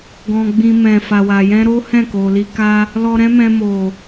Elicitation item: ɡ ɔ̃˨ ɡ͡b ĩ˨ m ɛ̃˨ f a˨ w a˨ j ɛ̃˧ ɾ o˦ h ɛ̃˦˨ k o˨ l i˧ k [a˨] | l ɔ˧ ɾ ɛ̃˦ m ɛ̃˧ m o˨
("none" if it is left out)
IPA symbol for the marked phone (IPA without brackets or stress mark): a˦